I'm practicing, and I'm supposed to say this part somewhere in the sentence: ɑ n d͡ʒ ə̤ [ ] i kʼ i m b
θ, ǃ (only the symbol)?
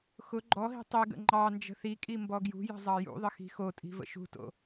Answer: θ